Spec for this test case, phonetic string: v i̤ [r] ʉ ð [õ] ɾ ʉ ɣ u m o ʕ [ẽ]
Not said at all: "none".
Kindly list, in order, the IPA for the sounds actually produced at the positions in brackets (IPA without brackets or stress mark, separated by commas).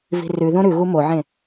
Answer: r, õ, ẽ